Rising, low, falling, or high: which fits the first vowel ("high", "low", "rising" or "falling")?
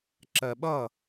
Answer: low